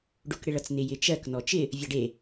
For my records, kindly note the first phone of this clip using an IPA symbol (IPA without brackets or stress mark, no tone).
ɖ